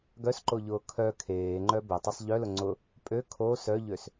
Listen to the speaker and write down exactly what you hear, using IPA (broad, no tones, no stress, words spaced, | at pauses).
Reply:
ɡœsǃoʎʊː kʰœ kʰeːŋ͡ǃœ bɪtˤɪsˤ ʎœlʊ ŋ͡ǀʊ | pʼø kʰo sœʎøs